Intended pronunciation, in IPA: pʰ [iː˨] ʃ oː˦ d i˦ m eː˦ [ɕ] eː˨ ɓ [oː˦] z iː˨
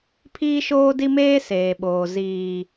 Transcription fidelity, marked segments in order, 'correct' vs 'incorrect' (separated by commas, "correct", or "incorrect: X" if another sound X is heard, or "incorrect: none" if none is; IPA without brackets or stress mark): incorrect: iː˦, incorrect: s, incorrect: oː˨